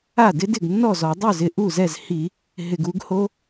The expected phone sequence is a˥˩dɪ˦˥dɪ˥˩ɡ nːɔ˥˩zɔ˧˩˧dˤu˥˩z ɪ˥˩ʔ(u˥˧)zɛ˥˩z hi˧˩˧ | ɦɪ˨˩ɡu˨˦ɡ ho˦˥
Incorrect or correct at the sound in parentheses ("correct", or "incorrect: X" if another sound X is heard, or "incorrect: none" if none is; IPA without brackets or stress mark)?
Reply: incorrect: u˥˩